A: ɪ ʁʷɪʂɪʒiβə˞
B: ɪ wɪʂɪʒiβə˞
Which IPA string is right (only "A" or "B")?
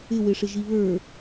B